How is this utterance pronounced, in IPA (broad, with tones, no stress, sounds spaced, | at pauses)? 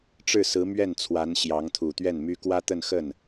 ʈ͡ʂ ɻ̩˥˩ s ɹ̩˧˥ m ɥ ɛ˥˩ n t͡sʰ w a˧˥ n ɕ j ɑ˧˥ ŋ t̪ʰ u˨˩ t̪ ɥ ɛ˥˩ n m y˥ k w ä˥ t̪ ə˥˧ n x ə˥˩ n